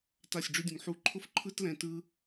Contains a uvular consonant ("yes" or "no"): no